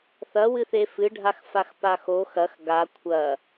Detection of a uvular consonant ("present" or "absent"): absent